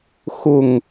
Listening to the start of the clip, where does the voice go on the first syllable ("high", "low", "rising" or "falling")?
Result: falling